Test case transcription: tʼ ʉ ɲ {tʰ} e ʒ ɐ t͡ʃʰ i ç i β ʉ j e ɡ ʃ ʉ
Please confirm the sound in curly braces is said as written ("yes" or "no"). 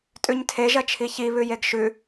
yes